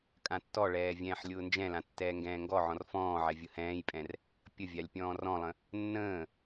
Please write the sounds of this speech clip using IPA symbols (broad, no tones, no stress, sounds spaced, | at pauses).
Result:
kʼ ã tː ɔ ɭ ɛː vʲ ɛ̃ː ħ lʲ ʊː n d͡ʒ ɛ̃ l ã tː ɛː ŋ ɡ ɛ̃ː ŋ ɡ ɔ ʕ ɔ̃ r f ɔ̃ː ʕ ɛ vʲ ʊ h ɛ̃ː j pʼ ɛ̃ r | pʲ ə vʲ a lʲ pʲ ɔ̃ː r ɔ̃ lˠ ə̃ | nː ə̃ː